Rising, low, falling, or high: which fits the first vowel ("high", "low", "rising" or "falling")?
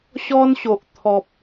high